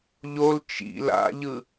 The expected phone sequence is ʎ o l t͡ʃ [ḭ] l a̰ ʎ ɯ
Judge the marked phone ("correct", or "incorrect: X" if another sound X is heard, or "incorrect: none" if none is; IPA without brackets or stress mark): correct